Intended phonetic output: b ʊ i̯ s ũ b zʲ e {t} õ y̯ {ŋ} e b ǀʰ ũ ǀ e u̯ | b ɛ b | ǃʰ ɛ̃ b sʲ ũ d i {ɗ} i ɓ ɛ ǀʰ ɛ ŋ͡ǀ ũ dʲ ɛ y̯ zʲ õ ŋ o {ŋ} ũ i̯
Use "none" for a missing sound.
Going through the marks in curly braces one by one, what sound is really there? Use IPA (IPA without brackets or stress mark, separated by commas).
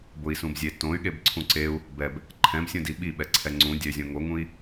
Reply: t, ɠ, ɓ, ŋ